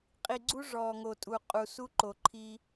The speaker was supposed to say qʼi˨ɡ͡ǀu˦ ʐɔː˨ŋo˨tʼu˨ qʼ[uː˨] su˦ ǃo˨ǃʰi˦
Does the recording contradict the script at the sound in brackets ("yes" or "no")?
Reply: yes